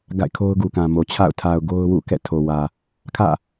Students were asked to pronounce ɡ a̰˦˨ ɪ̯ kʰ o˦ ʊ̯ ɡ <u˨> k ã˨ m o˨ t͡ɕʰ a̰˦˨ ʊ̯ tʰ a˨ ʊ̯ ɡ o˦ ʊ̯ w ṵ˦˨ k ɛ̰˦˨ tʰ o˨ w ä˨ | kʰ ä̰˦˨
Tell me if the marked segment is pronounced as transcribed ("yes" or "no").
yes